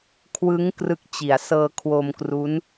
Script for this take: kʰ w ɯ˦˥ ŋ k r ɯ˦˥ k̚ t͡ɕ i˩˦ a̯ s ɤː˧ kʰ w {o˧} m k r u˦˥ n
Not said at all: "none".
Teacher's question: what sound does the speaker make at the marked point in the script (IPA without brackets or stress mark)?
o˧